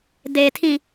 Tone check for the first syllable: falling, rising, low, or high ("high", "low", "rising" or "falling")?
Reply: low